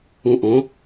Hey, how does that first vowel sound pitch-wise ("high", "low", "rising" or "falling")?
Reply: low